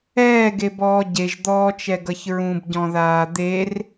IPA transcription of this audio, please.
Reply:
ɛː ɡ e b ɔː ɟ e ʒ d̪ ɔː t͡ʃ ɛ ɡ ʌ ç ɹ ũ b ɟ ɔ̃ ð aː d̪ e r

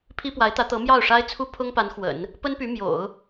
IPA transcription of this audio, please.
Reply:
pʰ i˥ p w a˧˥ ɪ̯ t̪ ä˧˥ t̪ ɤ˧˥ m j ɑ˥˩ ʊ̯ ʂ a˥ ɪ̯ t͡sʰ u˥ pʰ ʊ˥ ŋ p a˧˥ n x w ə̰˨˩˦ n | p ə˥ n p y˧˥ m j o̰˨˩˦ ʊ̯

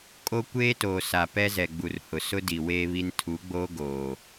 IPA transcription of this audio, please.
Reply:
kʼ o˦ kʷ eː˦ t oː˨ s a˨ p ɛ˦ z ɛ˨ ɡ͡b u˨ r h ʊ˨ s ʊ˦ d i˨ w eː˦ β i˦ n tʰ u˨˦ ɡ͡b oː˦ ɡ oː˨

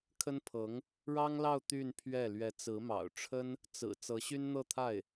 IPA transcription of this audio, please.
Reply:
kʰ ə˥ n pʰ ɤ˧˥ ŋ | ɻ ɑ˥ ŋ l ɑ˥˧ ʊ̯ t̪ y˥˧ n pʰ ɥ ɛ˥˩ l ɥ ɛ˧˥ t͡s ɹ̩˧˥ m ɑ̰˨˩ ʊ̯ ʈ͡ʂʰ ə˥ n | t͡s ɹ̩˨˩ t͡s ɤ˧˥ ɕ y˥ n n̪ ɤ˥˧ t̪ʰ a˥˩ ɪ̯

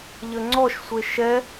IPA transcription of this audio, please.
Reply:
ʎ ə ŋ͡ǀ ɔ ʃ sʷ e ʃ ɛ

